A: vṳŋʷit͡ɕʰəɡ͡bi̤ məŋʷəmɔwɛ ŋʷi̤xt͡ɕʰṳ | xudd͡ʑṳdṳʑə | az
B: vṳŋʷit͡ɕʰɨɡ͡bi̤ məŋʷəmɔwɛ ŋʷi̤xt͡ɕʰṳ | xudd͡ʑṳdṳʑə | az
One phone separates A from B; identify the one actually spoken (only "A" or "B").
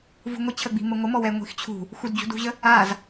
A